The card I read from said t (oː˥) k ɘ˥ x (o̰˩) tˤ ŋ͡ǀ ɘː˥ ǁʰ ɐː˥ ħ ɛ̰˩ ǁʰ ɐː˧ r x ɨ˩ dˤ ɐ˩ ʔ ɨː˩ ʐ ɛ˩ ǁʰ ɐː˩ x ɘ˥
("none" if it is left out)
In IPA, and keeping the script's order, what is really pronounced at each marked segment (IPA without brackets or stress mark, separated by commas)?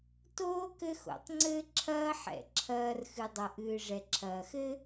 oː˥, o̰˩